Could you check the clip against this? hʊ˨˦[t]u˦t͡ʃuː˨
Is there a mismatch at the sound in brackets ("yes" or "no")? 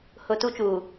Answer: no